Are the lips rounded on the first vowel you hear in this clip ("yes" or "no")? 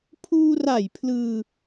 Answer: yes